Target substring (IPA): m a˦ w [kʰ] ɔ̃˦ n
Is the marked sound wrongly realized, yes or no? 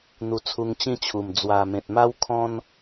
no